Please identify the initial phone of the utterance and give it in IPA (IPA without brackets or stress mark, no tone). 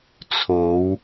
t͡sʰ